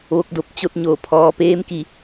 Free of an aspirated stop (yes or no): no